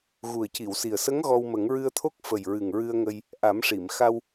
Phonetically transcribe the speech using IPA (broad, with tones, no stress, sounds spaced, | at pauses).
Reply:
ɣ u˨˩ ə̯ c i˨˩˨ w s i˨˩ ə̯ s ə˧˥ ŋ ɣ ɔ˧ w m ə˨˩˦ ŋ ɹ ɨ˧ ə̯ t̪ʰ o˦˥ k̚ f ə˨˩ j ɹ ɨ˨˩ ŋ ɹ ɨ˧ ə̯ ŋ ə˧ j | ʔ a˨˩˦ m ʂ i˨˩˨ m x a˧ w